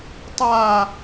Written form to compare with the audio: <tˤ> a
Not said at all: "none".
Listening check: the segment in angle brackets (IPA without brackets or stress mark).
tˤ